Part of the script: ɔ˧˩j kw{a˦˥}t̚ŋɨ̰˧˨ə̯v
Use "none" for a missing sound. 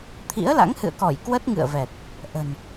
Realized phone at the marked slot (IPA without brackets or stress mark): ə˦˥